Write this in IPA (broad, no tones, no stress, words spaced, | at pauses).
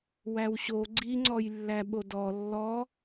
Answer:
wæwɕo ɡ͡ǀiŋ͡ǀɔjlːæ ɓodɔ lːɔ